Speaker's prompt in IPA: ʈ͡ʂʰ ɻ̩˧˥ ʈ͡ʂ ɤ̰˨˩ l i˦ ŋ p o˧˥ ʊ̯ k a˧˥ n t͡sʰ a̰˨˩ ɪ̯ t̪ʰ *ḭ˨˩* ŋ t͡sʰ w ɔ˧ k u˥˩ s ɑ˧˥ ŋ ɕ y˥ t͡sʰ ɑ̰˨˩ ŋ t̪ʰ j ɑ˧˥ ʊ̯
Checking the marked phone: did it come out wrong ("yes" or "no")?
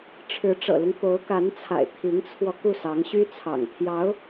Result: yes